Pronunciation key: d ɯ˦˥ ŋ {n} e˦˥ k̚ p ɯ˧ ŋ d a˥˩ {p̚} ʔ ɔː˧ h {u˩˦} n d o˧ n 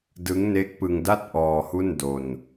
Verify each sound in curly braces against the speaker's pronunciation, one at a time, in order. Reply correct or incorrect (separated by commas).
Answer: correct, incorrect, incorrect